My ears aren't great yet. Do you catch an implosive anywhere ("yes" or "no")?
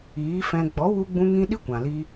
yes